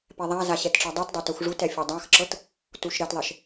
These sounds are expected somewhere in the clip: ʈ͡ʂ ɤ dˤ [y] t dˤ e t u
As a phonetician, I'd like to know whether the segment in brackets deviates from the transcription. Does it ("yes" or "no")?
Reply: yes